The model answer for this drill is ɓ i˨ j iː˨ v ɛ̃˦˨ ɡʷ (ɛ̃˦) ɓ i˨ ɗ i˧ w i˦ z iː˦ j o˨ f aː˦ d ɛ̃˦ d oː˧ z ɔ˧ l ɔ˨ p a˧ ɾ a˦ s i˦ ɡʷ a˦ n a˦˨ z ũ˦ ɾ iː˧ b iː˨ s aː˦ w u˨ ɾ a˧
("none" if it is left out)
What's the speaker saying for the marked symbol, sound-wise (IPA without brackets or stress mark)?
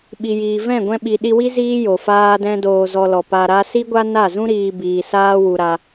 ɛ̃˧